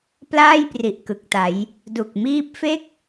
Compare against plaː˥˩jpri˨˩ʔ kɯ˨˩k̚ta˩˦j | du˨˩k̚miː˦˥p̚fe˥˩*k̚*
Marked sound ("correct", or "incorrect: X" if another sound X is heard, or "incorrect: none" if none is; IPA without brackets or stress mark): correct